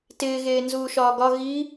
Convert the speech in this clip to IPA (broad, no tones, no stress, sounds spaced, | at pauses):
t ɪː ɣ eː n z uː ʃ ɒː ɡ ɒ ɣ i